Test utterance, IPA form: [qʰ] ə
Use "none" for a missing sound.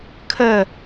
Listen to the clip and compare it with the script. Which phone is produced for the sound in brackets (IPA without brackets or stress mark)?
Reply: kʰ